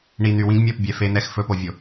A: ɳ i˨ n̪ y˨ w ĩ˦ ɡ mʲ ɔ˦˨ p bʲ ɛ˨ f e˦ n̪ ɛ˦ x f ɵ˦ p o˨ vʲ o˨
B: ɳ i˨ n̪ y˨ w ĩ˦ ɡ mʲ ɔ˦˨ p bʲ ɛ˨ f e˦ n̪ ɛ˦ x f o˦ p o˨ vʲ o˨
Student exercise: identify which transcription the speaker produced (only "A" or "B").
A